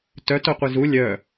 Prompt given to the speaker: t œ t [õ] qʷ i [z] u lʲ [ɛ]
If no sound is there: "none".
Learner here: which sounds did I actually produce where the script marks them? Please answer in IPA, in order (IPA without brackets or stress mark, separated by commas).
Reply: o, z, œ